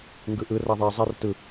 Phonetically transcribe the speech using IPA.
ŋ ɡ ɯ ʔ ɯ r a ðˤ ɛ zˤ a r t ɯ

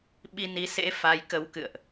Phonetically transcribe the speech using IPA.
ɓ i˧ n i˨˦ s ḛ˧˥ f a˨˦ j k ə˨˦ w k ɨ̰˧˨ ə̯ ʔ

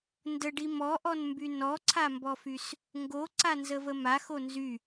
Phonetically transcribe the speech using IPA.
n d ə ɖ i m ɔ ʔ ɔ n m b y n ɔ ǀʰ a m b ɔ f y s | ŋ ɡ o ǀ a n z ə v ə m a x o n z y

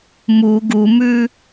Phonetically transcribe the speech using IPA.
m u ɡ u m ʉ

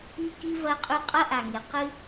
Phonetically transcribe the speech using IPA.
i˦ k i˦ v ɐ˦ qʼ ʉ˦ qʼ ɐ˦ ʔ a˨ ŋ e˨ q ɨ˦

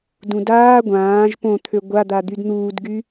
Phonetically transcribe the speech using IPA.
d ũ d aː ɡʷ ãː ʒ p õ t̪ʰ ø ɡʷ a d̪ a d̪ y d n̪ uː d ɡ y

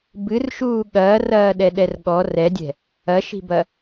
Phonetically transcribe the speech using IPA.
b ɨ r ʃ uː ɠ ɐː r ɐː ɗ ɛ ɗ ɛ r ɠ ɔ r ɛ dʲ ɛ̤ | ɐ ʃ i̤ b ɐ

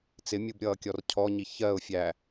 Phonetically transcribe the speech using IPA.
t͡s ɪ mʲ u b ɾʲ ʌː kʲ ɔ r cʰ ɔ ɲ i ç ɜ ʊ̯ fʲ æ

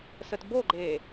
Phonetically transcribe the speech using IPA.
s ə t b o ɡ͡ǃ eː

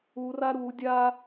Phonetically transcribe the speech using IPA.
u r a ɾ u dʲ a

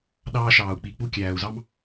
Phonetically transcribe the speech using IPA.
ɗ ɑː˦ ʃ ɑː˧ u̯ k͡p i˧ k͡p u˦ kʲ æː˧ u̯ z ɑ˦ m

